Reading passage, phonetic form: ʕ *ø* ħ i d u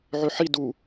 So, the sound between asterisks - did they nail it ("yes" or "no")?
yes